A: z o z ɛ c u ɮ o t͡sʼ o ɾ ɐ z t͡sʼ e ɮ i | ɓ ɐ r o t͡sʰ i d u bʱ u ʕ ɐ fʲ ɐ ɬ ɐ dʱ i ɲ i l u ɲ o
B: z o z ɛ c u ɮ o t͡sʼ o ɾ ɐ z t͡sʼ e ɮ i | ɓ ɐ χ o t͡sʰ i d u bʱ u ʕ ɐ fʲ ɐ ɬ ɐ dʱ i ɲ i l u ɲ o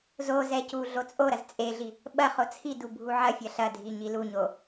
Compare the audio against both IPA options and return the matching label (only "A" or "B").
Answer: B